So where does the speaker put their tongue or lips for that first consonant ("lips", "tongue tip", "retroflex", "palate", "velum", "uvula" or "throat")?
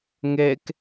velum